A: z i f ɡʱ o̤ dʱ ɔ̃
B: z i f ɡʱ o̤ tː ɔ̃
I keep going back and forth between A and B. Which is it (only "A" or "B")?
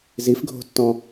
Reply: B